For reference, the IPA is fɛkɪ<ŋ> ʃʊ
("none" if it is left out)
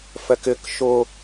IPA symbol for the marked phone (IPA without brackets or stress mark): k